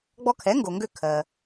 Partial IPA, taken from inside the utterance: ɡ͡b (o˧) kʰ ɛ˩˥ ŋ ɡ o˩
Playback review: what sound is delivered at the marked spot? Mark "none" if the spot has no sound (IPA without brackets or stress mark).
ɔ˧